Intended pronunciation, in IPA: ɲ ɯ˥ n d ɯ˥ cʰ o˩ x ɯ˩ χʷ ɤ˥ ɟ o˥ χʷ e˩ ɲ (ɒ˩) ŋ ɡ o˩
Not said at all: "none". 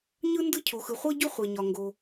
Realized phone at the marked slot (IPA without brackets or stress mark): ɒ˩